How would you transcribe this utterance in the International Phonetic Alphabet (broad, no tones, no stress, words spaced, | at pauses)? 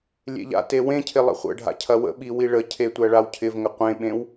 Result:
lʲḛʎa̰te wẽcʰɪ lˠə̰χʷə̰ɖʱa̰ cʰɐwə̰ɓi wiɭəcʰe tʷæɭawcʰɪvŋə qʷẽɓẽw